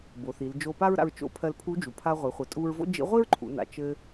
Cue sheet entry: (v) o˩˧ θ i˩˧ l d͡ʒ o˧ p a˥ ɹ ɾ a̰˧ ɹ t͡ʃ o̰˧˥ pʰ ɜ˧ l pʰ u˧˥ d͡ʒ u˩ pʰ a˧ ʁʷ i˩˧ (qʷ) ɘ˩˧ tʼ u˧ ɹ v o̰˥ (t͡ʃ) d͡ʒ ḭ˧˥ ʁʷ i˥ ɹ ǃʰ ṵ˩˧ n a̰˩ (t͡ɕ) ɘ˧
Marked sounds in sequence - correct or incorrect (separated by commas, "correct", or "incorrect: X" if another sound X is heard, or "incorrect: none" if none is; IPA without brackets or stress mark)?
incorrect: b, incorrect: χʷ, incorrect: none, incorrect: t͡ʃ